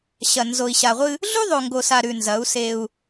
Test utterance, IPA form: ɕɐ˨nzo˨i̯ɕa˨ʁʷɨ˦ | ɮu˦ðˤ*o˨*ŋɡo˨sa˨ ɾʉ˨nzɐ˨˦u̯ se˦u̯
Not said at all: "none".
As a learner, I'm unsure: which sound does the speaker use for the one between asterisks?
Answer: o˨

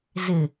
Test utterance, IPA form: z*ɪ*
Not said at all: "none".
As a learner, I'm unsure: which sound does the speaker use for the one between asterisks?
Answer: ɪ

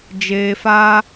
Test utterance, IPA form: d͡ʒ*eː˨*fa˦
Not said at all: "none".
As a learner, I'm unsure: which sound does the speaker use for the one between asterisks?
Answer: eː˨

